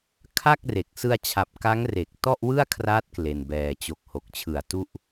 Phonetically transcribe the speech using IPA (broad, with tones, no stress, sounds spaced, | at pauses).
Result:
kʰ a˥˩ k̚ r e˨˩ k̚ s ɯ˧ a̯ t͡ɕʰ a˨˩ p̚ k a˦˥ ŋ r e˨˩ k̚ t ɔ˥˩ ʔ w ɯ˥˩ a̯ kʰ r a˦˥ t̚ k l e˧ n b ɛː˧ t͡ɕ o˦˥ k̚ h o˨˩ k̚ t͡ɕʰ ɯ˨˩ a̯ t u˥˩ ʔ